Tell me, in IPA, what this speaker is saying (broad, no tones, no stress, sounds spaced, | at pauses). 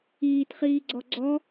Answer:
iː t χ iː ɡ͡ǀ ɔ ɡ͡ǀ ɔ